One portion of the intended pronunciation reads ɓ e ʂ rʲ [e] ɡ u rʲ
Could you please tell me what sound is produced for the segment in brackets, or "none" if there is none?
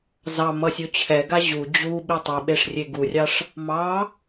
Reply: e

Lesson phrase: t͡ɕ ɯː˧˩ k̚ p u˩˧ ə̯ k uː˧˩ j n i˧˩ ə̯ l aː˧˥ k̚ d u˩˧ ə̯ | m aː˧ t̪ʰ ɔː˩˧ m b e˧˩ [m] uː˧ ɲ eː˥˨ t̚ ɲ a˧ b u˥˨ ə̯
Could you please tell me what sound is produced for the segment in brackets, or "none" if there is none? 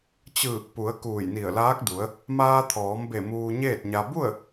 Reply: m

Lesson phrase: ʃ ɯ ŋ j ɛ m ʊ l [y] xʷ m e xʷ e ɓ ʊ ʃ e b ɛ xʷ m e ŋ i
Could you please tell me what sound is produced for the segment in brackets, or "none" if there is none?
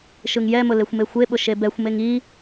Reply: e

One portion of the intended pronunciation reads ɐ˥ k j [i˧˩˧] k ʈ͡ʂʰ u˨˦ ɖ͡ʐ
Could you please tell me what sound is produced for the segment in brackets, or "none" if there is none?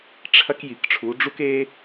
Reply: i˧˩˧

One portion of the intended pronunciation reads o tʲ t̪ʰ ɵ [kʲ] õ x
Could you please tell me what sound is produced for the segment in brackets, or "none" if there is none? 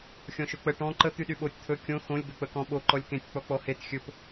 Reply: kʲ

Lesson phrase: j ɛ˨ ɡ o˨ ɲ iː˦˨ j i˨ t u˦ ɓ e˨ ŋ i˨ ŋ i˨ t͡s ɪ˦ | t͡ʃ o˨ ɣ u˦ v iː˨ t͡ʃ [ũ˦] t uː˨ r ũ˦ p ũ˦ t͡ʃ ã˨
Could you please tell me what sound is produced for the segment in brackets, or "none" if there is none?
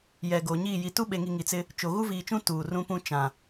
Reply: ũ˦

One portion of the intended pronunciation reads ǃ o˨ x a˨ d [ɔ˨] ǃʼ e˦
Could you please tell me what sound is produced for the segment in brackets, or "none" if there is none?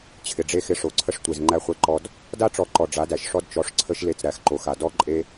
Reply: ɔ˦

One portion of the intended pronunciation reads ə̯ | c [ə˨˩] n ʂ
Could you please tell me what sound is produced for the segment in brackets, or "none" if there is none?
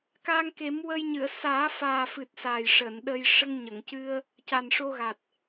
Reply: a˨˩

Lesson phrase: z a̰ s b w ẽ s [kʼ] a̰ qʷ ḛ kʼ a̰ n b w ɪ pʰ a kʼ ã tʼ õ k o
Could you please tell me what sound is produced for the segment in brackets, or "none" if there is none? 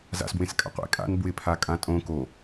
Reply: kʼ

